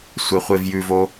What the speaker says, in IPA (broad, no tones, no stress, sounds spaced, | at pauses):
sʷ e χʷ e v j ʉ v o